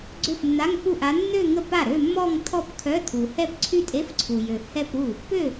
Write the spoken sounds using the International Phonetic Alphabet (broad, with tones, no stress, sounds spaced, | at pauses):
ɡ͡ǀ ø˥˩ f nː a˧˥˧ ŋ f u˥˩ ʔ a˧˥ nː ø˥˧ ŋ ə˥˩ p a˥˩ ɾ ø˥˧ mː ɔ˥˧ ŋ tʰ ɔ˥˧ p kʰ œ˧˥˧ tʰ u˨ h ɛ˥˧ p ǀʰ y˥˧ tʼ e˧˥˧ f ǀʰ u˨ j ø˨ h ɛ˥˧ p ɾ u˥˩ | p ø˥˩